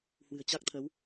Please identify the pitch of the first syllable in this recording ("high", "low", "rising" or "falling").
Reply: low